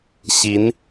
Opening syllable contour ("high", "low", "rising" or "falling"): rising